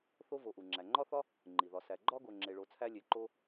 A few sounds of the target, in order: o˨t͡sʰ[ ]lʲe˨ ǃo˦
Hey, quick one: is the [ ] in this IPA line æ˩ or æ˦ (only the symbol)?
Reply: æ˦